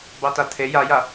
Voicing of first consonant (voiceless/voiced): voiced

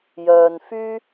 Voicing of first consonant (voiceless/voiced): voiced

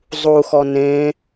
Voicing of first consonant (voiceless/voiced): voiced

